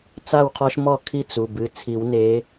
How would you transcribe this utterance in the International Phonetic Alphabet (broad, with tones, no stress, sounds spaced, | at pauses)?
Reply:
t͡s a˥˨ w qʰ ɔ˦ ʃ m ɔ˥˨ kʰ i˥˨ t͡s u˩˧˩ b ɨ˩˧˩ t͡sʰ i˨˩˦ w n e˨˦